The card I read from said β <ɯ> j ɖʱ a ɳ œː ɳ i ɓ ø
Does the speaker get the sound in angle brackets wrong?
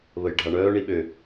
yes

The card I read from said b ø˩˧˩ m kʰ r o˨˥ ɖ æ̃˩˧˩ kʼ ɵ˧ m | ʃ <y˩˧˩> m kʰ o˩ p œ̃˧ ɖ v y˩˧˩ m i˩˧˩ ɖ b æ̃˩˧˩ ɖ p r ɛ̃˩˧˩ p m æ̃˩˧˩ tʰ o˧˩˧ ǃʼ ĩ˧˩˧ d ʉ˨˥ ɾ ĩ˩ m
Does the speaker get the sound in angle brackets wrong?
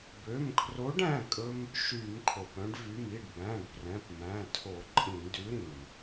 yes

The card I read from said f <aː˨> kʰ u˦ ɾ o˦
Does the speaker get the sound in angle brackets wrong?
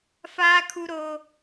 yes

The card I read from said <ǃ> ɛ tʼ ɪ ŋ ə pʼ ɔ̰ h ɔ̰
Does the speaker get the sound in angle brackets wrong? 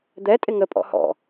yes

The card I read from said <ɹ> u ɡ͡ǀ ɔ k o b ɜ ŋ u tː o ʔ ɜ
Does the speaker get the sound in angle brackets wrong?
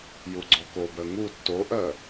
yes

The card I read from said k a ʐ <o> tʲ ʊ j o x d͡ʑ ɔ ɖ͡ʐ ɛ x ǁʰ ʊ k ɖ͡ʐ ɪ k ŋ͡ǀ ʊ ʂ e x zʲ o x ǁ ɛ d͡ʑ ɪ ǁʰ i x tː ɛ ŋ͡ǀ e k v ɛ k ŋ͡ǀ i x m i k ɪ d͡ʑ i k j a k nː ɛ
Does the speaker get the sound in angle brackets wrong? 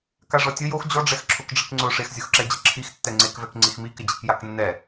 yes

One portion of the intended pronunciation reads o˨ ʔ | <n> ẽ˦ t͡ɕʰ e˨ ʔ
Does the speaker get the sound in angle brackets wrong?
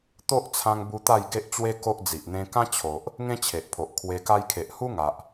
yes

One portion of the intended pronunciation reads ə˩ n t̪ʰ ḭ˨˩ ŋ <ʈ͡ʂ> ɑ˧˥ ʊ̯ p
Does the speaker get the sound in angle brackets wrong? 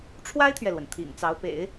yes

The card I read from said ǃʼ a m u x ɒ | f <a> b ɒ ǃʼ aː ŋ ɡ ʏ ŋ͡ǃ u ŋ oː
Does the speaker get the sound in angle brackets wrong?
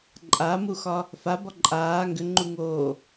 no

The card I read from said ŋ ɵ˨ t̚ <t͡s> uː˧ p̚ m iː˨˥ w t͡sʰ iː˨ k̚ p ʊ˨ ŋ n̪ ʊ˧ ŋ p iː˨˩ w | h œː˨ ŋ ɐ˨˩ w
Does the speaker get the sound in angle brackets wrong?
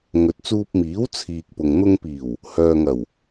no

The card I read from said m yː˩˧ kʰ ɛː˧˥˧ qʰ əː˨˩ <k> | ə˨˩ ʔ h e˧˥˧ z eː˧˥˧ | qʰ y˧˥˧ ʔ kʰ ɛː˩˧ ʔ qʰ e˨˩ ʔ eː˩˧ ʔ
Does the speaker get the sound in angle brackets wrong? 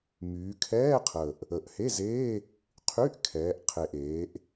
yes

